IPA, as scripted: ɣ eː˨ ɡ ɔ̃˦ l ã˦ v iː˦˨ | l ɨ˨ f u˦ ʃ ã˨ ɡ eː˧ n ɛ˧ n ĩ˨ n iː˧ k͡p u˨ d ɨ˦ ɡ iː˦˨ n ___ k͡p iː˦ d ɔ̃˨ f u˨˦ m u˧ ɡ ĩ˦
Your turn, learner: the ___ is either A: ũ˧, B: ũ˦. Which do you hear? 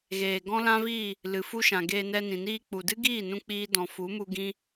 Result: B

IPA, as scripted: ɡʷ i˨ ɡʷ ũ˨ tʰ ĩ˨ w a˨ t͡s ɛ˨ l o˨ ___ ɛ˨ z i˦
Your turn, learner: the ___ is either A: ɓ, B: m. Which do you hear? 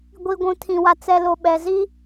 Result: A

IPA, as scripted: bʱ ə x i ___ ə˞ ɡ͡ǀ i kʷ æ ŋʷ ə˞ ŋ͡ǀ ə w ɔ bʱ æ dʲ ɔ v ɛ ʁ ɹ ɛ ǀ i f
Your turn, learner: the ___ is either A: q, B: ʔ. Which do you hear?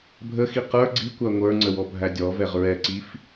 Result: A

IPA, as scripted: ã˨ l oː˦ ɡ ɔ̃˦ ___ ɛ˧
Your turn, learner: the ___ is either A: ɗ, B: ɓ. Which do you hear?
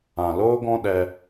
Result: A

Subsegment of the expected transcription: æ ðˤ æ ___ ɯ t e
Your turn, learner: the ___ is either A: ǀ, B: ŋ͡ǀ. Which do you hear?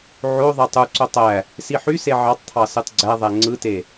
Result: B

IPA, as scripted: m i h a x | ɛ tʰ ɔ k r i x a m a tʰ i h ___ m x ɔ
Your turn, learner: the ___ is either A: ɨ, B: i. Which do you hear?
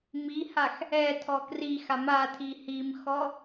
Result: B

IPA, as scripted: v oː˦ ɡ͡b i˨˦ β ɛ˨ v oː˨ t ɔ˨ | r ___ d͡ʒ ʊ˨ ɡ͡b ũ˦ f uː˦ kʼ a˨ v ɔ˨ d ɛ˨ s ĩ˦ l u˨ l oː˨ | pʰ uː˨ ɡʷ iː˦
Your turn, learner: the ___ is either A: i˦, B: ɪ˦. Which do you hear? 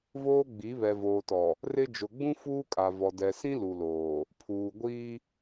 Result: B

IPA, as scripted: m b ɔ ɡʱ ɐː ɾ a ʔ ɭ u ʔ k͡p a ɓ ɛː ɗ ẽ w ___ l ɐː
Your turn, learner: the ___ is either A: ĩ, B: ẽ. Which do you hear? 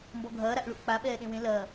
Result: B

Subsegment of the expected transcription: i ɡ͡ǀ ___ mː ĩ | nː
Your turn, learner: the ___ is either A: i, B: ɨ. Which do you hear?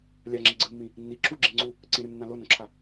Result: B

